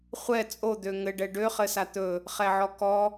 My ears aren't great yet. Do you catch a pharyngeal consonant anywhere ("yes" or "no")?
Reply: yes